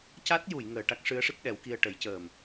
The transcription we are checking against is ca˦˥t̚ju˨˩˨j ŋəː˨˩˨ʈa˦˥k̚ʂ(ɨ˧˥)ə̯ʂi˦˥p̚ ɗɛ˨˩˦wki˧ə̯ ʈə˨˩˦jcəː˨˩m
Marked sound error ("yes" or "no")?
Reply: no